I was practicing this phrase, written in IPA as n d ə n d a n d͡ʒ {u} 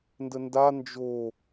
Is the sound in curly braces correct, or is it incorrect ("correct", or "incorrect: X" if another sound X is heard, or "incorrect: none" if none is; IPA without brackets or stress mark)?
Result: incorrect: o